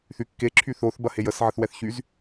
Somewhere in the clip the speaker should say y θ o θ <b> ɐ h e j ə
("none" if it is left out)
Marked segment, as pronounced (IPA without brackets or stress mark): b